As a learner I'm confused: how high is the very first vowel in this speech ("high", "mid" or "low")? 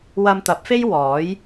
low